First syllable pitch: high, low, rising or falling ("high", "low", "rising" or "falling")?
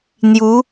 rising